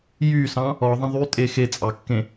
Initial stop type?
ejective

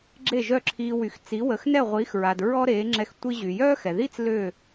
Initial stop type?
click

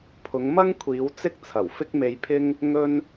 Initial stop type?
aspirated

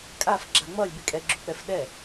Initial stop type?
ejective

